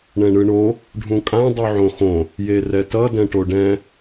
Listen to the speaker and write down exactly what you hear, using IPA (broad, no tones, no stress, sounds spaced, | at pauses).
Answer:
ɳ ɛ̃ ɳ ɯ ɳ o | ɖʱ ũ kʼ ã dˤ u ʕ õ x õ | j e r ɛ t ʌ d ɛ̃ ʈ o ɖ ɛ̃